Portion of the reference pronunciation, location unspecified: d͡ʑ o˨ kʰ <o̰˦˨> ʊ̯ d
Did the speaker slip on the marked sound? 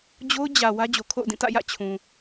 no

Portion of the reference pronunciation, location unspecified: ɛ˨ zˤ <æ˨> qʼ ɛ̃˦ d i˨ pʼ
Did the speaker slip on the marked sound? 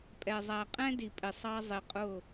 no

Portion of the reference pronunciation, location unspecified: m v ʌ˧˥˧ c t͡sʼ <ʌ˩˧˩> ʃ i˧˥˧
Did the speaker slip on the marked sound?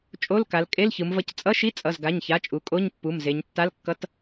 yes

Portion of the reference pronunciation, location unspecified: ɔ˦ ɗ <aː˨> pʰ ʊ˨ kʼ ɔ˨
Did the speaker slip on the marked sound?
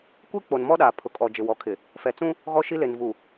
no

